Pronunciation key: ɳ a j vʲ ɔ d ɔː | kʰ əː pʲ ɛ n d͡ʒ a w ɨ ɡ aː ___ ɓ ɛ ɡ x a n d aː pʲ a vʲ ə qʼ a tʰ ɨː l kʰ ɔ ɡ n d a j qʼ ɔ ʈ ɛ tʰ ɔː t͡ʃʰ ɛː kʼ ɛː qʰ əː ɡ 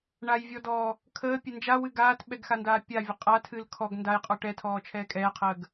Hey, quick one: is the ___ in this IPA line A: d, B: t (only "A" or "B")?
B